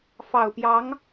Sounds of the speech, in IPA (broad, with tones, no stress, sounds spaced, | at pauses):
f ɑ˨˩ ʊ̯ p j ɑ˧˥ ŋ